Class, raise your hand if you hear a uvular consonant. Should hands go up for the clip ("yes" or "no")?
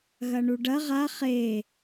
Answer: yes